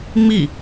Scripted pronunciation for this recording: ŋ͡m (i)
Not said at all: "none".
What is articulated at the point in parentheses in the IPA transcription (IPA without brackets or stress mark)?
i